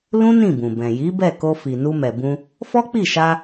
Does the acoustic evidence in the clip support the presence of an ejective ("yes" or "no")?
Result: no